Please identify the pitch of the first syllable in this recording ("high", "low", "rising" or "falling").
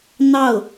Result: falling